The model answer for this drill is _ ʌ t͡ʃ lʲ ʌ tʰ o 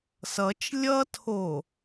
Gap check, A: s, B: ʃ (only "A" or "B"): A